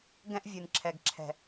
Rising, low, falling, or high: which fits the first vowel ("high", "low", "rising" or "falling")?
high